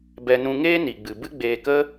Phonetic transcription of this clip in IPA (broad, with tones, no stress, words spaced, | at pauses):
bɛ˧nũ˧ ŋeː˦ni˨ɡ͡bɨ˨ bɨ˦ɡ͡beː˧kə˦